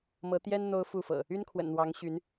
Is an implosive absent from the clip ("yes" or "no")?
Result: yes